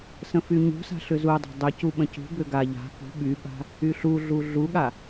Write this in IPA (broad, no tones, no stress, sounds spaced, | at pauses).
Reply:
s ə̃ f y ɲ ṳ s a̤ ɬ ʏ z u dˤ a̤ dˤ ʏ c u ɓ ə̃ c ṳ b ʏ ɡ a ʎ a̤ k ṳ ɓ y ɓ a̤ | y ɬ u ɮ u ɮ u ɠ a